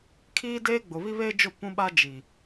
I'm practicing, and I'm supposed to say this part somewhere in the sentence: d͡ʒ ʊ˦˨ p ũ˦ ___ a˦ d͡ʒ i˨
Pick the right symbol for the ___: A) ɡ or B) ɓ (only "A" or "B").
B